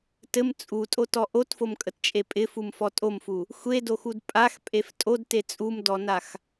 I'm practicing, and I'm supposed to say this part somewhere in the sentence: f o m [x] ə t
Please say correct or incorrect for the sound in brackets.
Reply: incorrect